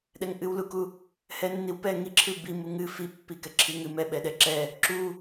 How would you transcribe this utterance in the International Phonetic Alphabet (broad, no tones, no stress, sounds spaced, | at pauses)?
ɗ ɛ ŋ ʔ ɨ w l u k u | h ɛ nː i w p ɛ ŋ i ǁʰ ɨ b i m u ŋ ɨ f i pː i k ɛ ǁʰ i ŋ ɨ m ɛ ɓ ɛ ɗ ɛ ǁ ɛ | ǁ u